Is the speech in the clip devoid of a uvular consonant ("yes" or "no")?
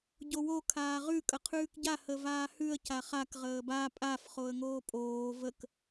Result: no